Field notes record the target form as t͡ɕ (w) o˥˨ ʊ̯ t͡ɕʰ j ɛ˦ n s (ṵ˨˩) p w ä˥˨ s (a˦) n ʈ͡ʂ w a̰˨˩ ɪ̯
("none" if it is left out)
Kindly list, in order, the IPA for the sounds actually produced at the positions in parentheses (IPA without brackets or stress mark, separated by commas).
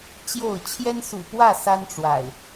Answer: j, ṵ˨˩, a˦